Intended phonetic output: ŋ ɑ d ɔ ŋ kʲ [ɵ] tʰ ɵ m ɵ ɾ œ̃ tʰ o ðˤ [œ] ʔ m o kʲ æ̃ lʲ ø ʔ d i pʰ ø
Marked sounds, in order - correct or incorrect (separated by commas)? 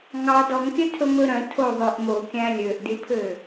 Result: incorrect, correct